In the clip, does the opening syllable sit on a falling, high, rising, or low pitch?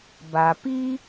low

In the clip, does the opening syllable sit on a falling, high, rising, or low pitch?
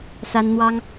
high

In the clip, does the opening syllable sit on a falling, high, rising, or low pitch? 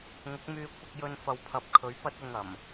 rising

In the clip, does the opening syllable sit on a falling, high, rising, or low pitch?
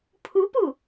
rising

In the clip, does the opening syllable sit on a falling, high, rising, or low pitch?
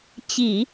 low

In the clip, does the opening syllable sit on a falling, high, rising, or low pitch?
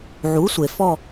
rising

